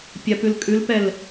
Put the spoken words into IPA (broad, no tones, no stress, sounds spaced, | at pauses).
pʲ a p ʉ l kʼ ʉ l p ɛ l